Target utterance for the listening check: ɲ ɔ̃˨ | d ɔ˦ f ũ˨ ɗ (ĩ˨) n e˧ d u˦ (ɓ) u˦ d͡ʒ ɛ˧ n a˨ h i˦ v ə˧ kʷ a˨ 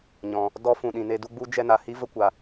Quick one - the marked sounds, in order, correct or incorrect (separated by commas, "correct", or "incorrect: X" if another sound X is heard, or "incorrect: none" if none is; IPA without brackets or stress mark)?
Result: correct, incorrect: ɡ͡b